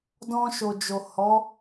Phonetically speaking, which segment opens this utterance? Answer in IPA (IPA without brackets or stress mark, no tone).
d